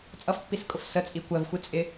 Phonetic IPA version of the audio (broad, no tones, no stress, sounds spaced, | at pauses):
t͡sʼ ʌ f pː i s kʼ ʊ f s ə t͡sʼ i kʷ ɜ v xʷ i t͡sʼ ɪ